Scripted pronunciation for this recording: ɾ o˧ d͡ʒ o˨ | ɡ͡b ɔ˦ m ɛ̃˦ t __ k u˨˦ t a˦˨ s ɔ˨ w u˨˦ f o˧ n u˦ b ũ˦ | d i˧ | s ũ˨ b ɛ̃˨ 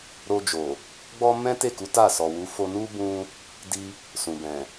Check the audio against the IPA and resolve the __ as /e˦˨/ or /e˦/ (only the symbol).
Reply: e˦˨